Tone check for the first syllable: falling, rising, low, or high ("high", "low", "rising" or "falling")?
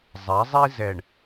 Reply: rising